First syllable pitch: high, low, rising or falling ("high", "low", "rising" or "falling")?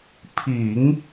low